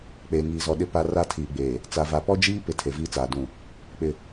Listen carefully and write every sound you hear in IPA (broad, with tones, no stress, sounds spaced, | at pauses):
k͡p eː˨ ŋ iː˨ z ɔ˨ ɗ ɪ˦ p a˦ r a˦ tʰ iː˨ ɡ͡b eː˨ | t͡s a˨ v a˨ p ɔ˦ d͡ʒ iː˦ p ɪ˨ tʰ e˨ v iː˦ t͡s aː˨ d ũ˨ | k͡p ɪ˦˨